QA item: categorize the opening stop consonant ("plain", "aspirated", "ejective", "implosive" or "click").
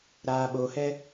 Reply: implosive